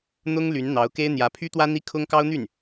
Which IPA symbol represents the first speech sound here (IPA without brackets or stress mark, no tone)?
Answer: n̪